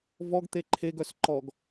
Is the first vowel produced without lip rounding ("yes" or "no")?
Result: no